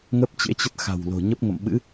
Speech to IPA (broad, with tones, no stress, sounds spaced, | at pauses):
ŋ ə˦˥ p̚ t͡ɕ ḛ˧˥ t͡ɕ ə˦˥ t̚ x a̤˨˩ w l o̤˨˩ ɲ ə˦˥ p̚ ŋ ə̰˧˨ m ɓ ɨ̰˧˥